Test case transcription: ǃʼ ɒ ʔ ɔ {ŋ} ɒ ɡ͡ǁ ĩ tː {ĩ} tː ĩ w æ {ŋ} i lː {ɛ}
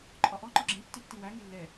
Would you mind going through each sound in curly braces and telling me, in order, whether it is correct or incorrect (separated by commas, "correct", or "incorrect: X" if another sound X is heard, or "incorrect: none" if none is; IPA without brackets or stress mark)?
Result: incorrect: ŋ͡ǃ, incorrect: i, correct, correct